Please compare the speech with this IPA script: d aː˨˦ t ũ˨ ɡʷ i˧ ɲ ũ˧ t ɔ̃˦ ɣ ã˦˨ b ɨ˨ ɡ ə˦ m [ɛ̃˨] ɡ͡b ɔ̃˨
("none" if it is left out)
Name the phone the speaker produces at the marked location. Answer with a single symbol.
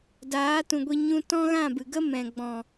ɛ̃˨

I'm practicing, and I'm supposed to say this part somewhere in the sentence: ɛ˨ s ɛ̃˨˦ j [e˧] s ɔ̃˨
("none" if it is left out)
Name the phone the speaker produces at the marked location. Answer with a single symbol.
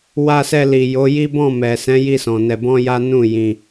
i˧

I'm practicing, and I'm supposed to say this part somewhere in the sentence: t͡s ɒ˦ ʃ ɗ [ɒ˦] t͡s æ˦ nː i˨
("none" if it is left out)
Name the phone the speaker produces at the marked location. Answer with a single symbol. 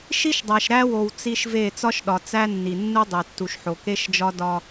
ɒ˨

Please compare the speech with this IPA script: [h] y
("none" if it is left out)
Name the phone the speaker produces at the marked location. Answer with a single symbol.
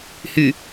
h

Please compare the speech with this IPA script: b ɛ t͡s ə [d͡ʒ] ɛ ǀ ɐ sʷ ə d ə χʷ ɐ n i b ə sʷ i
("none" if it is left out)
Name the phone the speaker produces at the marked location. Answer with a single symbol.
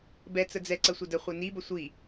d͡z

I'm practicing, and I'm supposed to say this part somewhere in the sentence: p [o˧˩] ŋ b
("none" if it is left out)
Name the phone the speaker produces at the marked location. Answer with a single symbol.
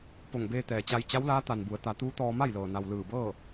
o˧˩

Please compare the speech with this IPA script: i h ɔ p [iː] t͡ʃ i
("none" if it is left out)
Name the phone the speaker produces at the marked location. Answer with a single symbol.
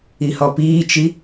iː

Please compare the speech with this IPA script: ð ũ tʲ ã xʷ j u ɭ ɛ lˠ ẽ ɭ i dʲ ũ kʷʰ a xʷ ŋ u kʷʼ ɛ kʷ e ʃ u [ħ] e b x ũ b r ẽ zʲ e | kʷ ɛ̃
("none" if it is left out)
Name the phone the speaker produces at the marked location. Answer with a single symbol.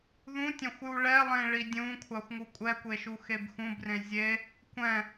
x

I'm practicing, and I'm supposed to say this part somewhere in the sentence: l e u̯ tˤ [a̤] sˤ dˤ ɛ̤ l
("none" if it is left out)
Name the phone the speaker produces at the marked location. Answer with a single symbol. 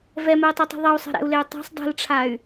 a̤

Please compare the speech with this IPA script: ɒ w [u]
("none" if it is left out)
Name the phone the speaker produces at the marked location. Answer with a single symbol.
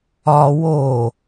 o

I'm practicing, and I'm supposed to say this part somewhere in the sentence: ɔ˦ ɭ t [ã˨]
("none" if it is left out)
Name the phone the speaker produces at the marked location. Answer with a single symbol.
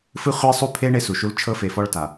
a˨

